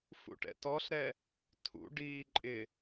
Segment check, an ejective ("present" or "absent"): present